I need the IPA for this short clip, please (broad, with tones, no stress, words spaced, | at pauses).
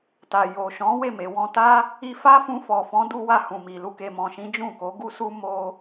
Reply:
ta˨jo˨ ʃɔ̃˨˦ we˦˨me˨ wɔ̃˧ta˦ | i˧fa˦fũ˧ fɔ˨fɔ̃˨˦du˧wa˧ hũ˨mi˨lu˧ ke˨mɔ̃˨ʃĩ˨˦ d͡ʒũ˦˨ko˨˦ɡu˦su˦ mo˦